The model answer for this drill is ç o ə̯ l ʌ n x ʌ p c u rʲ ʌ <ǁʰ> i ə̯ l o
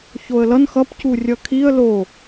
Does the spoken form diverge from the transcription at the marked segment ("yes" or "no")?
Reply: yes